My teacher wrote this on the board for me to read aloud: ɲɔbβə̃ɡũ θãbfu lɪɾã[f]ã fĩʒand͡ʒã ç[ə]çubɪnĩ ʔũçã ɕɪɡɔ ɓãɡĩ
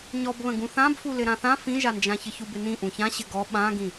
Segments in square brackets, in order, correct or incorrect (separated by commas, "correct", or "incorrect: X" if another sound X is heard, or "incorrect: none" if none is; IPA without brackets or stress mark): incorrect: θ, correct